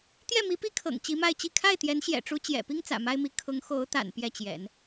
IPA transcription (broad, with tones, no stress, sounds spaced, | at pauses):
t̪ j ɛ˥˩ m i˧˥ p i˥ kʰ ɤ̰˨˩ ŋ t͡ɕ i˧˥ m a˥˧ ɪ̯ t͡ɕ i˥˧ kʰ a˥˩ ɪ̯ t̪ j ɛ˧˥ n ɕ j ɛ̰˨˩ ʈ͡ʂ u˧˥ t͡ɕ j ɛ̰˨˩ p i˥ ŋ t͡s ä̰˨˩ m a˥ ɪ̯ m i˧˥ kʰ ʊ˧˥ ŋ x o˧˥ ʊ̯ t̪ a̰˨˩ n p j ɛ˥˩ t͡ɕ j ɛ̰˨˩˦ n